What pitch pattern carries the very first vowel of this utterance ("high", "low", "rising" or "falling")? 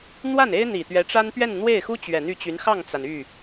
falling